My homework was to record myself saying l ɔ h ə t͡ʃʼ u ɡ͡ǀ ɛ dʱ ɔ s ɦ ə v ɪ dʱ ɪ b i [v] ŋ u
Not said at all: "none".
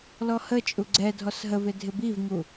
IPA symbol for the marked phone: v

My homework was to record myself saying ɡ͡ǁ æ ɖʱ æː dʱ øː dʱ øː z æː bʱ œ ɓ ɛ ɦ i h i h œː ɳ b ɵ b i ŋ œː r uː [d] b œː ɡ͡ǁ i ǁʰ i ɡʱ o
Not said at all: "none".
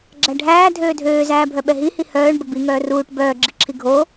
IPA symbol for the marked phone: ʈ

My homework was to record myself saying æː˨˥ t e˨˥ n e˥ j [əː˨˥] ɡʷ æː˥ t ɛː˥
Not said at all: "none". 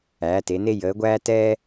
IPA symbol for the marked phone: əː˨˥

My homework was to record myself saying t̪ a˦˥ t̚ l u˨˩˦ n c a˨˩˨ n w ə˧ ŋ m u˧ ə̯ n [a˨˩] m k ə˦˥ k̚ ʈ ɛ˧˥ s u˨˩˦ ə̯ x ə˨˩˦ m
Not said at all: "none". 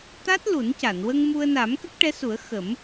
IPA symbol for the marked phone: a˨˩˦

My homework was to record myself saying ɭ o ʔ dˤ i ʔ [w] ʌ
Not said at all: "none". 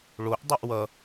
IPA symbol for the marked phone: w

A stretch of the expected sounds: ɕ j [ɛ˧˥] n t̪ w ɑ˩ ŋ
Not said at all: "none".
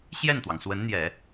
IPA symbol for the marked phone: ɛ˥˩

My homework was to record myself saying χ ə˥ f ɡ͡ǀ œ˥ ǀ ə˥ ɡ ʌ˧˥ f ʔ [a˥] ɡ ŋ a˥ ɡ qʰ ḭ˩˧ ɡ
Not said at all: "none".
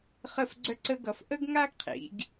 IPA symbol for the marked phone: ə˥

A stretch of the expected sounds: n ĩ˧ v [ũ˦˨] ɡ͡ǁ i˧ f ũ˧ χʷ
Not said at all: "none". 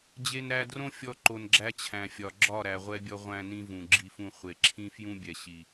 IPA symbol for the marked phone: ũ˨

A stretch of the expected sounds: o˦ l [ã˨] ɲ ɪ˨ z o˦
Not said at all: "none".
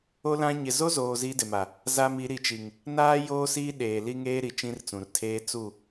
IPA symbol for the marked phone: ã˦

